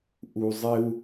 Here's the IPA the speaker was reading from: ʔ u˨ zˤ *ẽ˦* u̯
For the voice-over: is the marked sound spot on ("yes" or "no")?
no